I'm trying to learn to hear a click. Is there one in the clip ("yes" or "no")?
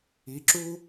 yes